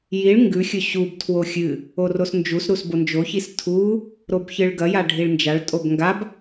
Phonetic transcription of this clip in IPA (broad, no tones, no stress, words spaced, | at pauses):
jiɭ ŋɡʉxʲɵ ɕubtʰwo xʲɨ | orosnd͡ʒusɾus bond͡ʒoçis tʰu | ɾobçɨɭɡɐja ɖʱiɭnd͡ʒaɭtʼob ŋɡab